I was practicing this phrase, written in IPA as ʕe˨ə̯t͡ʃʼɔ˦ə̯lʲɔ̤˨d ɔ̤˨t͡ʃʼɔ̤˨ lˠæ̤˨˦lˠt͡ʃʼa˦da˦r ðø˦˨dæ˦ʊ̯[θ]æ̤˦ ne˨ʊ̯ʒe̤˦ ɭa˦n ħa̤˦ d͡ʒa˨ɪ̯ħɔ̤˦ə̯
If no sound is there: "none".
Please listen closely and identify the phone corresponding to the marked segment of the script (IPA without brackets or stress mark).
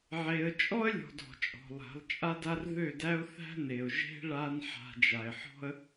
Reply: θ